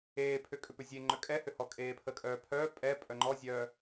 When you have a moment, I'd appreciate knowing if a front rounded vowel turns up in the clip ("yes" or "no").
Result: yes